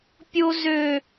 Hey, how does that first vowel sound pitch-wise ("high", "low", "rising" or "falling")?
high